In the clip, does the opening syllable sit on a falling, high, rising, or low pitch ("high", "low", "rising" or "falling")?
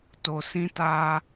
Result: low